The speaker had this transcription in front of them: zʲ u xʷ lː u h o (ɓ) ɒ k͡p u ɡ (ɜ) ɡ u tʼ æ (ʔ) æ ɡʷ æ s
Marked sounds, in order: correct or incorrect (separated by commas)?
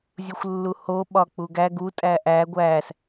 correct, incorrect, correct